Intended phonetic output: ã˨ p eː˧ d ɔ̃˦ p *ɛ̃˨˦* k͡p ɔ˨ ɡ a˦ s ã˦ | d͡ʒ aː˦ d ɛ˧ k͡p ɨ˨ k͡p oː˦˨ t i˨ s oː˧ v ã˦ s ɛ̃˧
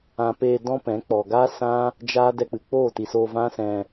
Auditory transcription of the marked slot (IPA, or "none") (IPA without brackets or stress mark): ɛ̃˨˦